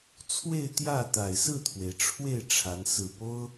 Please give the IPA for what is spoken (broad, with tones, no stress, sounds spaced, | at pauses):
t͡sʰ w e˥˧ ɪ̯ t̪ j ä˥˩ t̪ a˨˩ ɪ̯ s ɹ̩˥˩ t̪ʰ w e˩ ɪ̯ ʈ͡ʂʰ w e˥˩ ɪ̯ ʈ͡ʂʰ a˧˥ n s ɹ̩˥˩ p o˥ ʊ̯